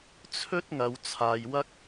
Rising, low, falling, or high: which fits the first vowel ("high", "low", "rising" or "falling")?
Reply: high